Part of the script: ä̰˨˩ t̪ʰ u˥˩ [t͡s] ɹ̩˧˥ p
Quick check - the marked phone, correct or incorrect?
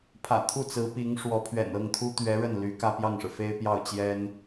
correct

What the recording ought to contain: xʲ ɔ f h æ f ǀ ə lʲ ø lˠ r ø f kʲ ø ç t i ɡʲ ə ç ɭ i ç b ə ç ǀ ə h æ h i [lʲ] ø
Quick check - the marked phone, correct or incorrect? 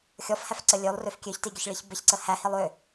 incorrect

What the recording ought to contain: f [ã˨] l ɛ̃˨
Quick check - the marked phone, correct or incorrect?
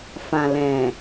correct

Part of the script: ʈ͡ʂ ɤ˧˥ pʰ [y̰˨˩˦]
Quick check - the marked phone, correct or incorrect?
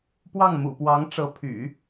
correct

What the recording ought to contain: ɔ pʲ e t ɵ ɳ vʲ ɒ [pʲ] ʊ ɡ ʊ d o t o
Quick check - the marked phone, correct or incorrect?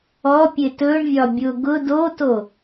incorrect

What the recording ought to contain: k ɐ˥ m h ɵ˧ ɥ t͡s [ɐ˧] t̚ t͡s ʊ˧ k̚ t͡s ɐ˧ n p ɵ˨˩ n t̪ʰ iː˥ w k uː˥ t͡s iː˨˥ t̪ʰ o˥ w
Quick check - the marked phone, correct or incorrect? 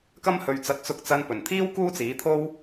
correct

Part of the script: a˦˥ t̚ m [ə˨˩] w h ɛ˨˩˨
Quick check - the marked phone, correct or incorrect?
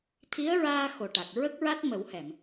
incorrect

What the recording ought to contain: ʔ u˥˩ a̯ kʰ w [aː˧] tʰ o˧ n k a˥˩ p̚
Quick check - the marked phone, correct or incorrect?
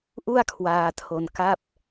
correct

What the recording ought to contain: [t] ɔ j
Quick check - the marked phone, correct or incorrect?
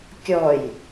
incorrect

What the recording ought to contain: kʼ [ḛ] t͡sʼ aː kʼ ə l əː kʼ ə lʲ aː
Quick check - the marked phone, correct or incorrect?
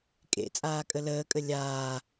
correct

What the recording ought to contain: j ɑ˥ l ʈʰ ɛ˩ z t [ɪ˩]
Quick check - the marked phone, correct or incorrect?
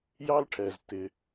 correct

